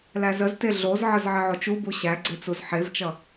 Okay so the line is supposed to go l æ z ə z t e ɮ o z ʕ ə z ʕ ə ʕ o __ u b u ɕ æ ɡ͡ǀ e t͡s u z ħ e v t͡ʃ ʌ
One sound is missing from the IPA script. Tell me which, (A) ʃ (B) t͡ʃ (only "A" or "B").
B